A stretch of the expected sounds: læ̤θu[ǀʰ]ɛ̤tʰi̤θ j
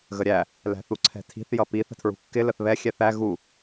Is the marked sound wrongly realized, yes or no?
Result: no